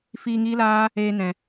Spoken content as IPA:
f iː˧ ŋ iː˦ l aː˦ | eː˧ n ɛ̃˨

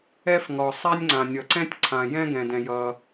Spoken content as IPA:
ɛ˥ f ŋ ɔ˩ sˤ a˥ nʲ ŋ͡ǀ ã˩ nʲ ʌ˩ ǀ ɛ̃˥ tʲ ǀʰ ã˩ j ɛ̃˥ ɡ ɛ̃˩ d ɛ̃˩ j ʌ˩

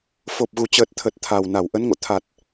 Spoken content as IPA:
f o˨˩ p̚ ɣ u˨˩ t͡ɕ əː˨˩ t̚ t̪ʰ ə˨˩ t̚ t̪ʰ a˨˩ w n a˧˩ w ʔ ə˨˦ n ŋ o̰˧˨ t̪ʰ a˨˩ t̚

